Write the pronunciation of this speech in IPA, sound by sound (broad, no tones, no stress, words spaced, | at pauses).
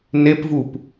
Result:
nepvup